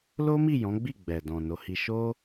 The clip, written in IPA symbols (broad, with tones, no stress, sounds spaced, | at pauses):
l o˦ m i˦˨ j ɔ̃˨˦ ɡ͡b i˦˨ ɡ͡b ɛ˨ d ɔ̃˨ n o˨˦ h i˧ ʃ o˦